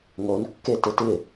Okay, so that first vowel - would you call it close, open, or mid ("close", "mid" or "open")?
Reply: mid